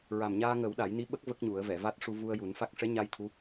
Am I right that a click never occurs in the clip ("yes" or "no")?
yes